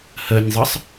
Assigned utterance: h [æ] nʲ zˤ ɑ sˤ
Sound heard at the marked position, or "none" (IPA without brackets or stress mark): ɜ